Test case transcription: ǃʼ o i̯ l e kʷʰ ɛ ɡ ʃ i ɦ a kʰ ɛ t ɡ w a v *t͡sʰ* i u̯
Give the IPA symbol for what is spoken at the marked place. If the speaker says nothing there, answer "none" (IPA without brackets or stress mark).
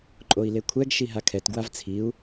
t͡sʰ